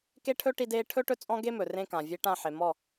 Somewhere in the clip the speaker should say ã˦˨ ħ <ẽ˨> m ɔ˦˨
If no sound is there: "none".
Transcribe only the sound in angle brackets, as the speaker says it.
e˨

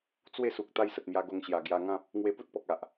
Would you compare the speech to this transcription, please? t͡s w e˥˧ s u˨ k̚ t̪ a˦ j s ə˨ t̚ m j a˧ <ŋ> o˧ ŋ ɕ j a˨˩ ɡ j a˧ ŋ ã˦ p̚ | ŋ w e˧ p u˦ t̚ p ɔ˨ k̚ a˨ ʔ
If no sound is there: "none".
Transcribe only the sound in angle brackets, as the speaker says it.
ɡ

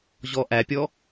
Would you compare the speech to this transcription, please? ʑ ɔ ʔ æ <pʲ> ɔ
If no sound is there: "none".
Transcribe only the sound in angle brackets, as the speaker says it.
pʲ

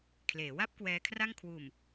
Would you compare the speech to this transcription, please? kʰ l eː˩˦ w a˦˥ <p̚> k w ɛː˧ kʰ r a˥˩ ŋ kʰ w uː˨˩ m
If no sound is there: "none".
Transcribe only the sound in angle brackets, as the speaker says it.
p̚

